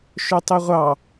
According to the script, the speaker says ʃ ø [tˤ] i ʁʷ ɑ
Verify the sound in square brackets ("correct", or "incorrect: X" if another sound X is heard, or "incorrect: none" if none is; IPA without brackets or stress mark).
correct